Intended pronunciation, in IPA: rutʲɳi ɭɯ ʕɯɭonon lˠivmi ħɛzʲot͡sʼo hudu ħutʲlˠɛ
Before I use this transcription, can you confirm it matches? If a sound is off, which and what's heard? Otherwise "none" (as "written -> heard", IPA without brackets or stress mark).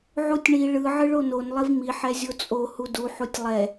r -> ʕ